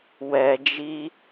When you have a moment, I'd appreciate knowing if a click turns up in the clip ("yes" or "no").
no